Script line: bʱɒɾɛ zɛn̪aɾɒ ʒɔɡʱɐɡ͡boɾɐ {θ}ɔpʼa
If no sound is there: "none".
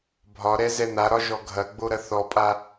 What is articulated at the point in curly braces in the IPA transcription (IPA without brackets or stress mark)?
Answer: θ